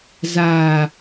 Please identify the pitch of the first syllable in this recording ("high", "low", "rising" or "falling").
low